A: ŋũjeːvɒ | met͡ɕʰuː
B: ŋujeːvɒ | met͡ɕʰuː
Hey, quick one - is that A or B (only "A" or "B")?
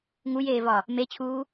B